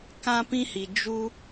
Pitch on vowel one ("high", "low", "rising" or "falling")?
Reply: high